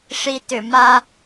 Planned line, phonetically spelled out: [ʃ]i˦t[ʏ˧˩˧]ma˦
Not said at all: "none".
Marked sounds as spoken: ʂ, ʏ˧˩˧

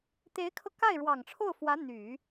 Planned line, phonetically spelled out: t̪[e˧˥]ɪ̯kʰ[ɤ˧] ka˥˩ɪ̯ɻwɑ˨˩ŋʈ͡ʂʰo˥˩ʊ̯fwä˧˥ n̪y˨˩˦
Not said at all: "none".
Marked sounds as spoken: e˧˥, ɤ˧

